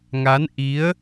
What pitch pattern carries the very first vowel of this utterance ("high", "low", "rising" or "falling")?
rising